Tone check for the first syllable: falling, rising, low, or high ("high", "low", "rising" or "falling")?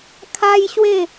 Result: high